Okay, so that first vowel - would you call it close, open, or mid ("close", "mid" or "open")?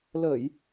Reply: mid